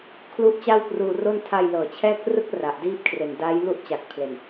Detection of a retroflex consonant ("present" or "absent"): absent